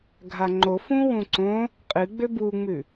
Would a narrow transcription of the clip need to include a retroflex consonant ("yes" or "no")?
no